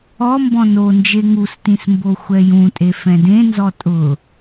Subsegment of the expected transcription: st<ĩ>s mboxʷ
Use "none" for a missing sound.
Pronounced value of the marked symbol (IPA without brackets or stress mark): ĩ